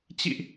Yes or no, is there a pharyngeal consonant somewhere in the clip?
no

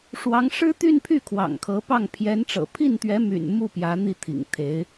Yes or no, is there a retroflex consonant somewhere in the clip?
yes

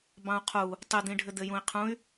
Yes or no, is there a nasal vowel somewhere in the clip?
yes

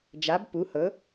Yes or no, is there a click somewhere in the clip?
no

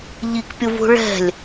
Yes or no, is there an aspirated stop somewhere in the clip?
no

